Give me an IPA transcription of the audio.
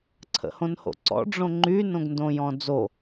ǀʰ ə̰ h õ n h o̰ ǀ ɔ̰ ɖ͡ʐ õ ŋ͡ǃ y n õ ɡ n d õ j ɔ̃ d͡z o

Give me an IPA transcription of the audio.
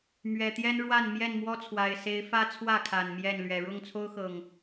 m ɥ ɛ˨˩ t̪ j ɛ˦ n ɻ w a˥˨ n m j ɛ˥˨ n m w ɔ˦ t͡sʰ w a˨˩ ɪ̯ s e˨˦ ɪ̯ f ä˦ t͡sʰ w ä˥˨ kʰ a˨˩ n m j ɛ˥˨ n l ɥ ɛ˨˩ ɻ ʊ˥˨ ŋ t͡sʰ o˦ ʊ̯ x ɤ˨˩ ŋ

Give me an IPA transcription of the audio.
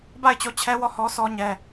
b a˦˨ ɪ̯ t͡ɕ o˦˨ t͡ɕʰ ɛ˦ w ɔ˦˨ h ɔ˦ s ɔ˦ ɲ ɛ˦

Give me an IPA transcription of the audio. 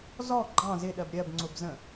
z ɔ ɡ͡ǃ ɑ̃ z ɪ ɗ ɜ b ɾʲ ɜ b ŋ͡ǀ ʊ b z ə̃

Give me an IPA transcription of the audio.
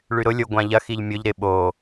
ɭ y ɾ ʊ lʲ ʊ ɡʷ ã ʎ ɐ x i ʎ mʲ ʊ ʎ ɾ ɪ ɓ o

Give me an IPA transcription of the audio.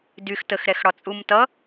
d y x t ə x ɾ ɛ x ɽ ɒ t͡sʼ u m t ʌ

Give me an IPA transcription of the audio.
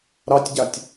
ɾ ɑ tʲ ɟ a tʲ

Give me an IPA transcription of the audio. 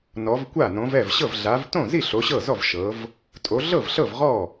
n ɔ˨˦ v kʷ a˥˩ n õ˨˦ v ɛ˥˩ v ɕ ɤ˥˩ v ɮ a˨˦ v t õ˥˩ z i˥˩ ɬ o˨˦ ɕ ɤ˥˩ z ɔ˥˩ v ʃ ɤ˨˦ v | tʼ o˨˦ ɮ ɤ˥˩ v ɬ ɤ˥˩ v ʁ ɔ˥˩

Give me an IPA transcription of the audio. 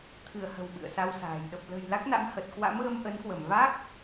t̪ʰ ɨ˧˩ ə̯ h ə̤˨˩ w ɓ ɨ̰˧˨ ə̯ s a˧ w s a̤ː˨˩ j ɗ ə˨˩ p̚ l ə̤˨˩ j l a˦˥ k̚ n a̰˧˥ m h ə˨˩ t̚ k w a̰˧˥ m ɣ ə˧ m ʔ ə˨˦ n k w ə˧˩ m v a˦˥ k̚

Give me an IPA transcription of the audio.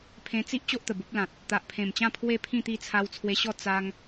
pʰ ẽ˧ t͡s i˦ ʔ t͡ɕ o˦ ʔ t̪ ə˨˩ b u˦ p̚ l ã˨ t̚ | t̪ a˨ ʔ pʰ ẽ˨˩ m t͡ɕ ã˥˧ pʰ w e˥˧ pʰ ĩ˥˧ t̪ i˥˧ t͡sʰ a˧ w t͡sʰ w e˧ ɕ ɔ˥˧ t͡s a˦ ŋ

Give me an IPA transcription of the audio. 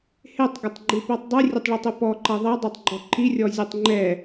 h e tˤ ɡ ɘ tˤ ɡ͡ǃ ɨ p ɛ tˤ dˤ ɨ rʲ ɘ tˤ ɭ ɨ tˤ ɨ p ɔ ǃ ɐ ðˤ ɐ dˤ e tˤ ɡ͡ǃ ɔ ǃ i rʲ ɔ zʲ u tˤ ŋ͡ǃ ɛ

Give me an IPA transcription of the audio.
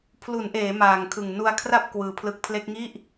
pʰ l u˩˦ n ʔ eː˩˦ m aː˨˩ ŋ kʰ ɯ˨˩ ŋ n u˧ a̯ kʰ r a˥˩ p̚ k w ɯː˧ pʰ l ɯ˦˥ k̚ pʰ l e˦˥ k̚ ŋ i˥˩ ʔ

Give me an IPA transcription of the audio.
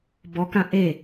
b ɔ k ã ʔ e

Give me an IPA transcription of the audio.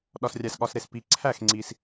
ɗ ɒ˨ s rʲ æ˨ s ɠ ɒ˨ s ɾ e˥˩ s p i˨ ǀʰ æ˥˩ x ŋ͡ǀ i˨ s

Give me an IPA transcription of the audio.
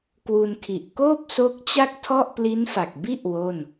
k w u˧ n kʰ i˨˩ ʔ k oː˥˩ p̚ s o˦˥ k̚ t͡ɕ a˥˩ k̚ tʰ ɔ˥˩ ʔ p l i˦˥ n f a˨˩ k̚ b i˥˩ ʔ w o˥˩ n

